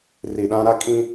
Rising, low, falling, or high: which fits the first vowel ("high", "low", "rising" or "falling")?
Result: low